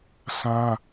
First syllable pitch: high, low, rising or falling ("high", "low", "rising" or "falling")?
high